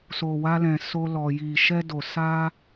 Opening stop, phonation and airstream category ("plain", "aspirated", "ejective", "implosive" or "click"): plain